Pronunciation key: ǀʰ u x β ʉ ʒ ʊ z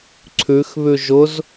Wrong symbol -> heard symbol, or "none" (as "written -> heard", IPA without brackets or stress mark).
u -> ʉ